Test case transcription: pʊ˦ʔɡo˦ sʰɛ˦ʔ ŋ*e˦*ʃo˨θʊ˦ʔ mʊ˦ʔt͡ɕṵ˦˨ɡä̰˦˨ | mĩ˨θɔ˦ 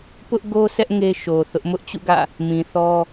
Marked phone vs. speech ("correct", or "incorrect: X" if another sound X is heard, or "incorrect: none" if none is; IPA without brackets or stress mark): correct